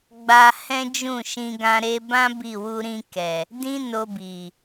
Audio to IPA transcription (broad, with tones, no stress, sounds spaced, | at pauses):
ɡ͡b a˧ h ɛ̃˦ d͡ʒ ũ˦˨ ʃ ĩ˧ ɡ ã˧ ɾ e˧ b ã˦ b i˦˨ w u˧ ɾ ĩ˧ k ɛ˨ | d ĩ˦ n o˧ b i˨